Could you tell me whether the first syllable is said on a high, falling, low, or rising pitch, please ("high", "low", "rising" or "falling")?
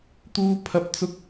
high